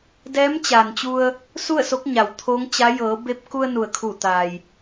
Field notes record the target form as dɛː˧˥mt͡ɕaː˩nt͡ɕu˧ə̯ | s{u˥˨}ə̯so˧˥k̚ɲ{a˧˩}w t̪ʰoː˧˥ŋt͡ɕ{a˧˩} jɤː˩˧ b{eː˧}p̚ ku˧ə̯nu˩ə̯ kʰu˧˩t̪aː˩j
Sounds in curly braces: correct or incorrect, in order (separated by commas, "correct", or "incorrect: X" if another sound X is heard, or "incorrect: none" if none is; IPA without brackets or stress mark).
correct, incorrect: a˩, incorrect: a˧˥, incorrect: e˧